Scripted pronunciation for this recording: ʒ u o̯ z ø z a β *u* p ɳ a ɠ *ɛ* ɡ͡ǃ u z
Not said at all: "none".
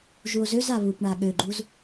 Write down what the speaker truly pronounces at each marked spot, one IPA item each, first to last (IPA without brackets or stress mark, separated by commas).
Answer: u, ø